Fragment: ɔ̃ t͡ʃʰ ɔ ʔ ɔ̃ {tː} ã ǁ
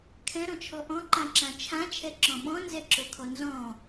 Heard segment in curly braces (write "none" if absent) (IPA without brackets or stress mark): ǃ